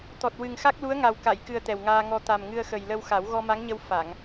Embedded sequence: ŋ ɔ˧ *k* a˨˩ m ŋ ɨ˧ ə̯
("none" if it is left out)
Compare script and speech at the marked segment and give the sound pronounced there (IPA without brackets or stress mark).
t̪